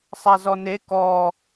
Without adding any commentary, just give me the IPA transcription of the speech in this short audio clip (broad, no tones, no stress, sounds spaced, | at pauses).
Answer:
sˤ a z ɔ n e k ɔ